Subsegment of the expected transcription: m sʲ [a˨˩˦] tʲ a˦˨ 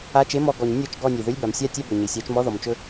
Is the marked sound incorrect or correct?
incorrect